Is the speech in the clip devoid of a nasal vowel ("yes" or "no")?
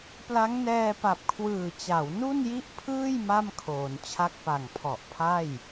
yes